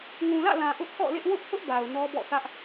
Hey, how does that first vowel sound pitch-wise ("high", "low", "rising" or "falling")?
low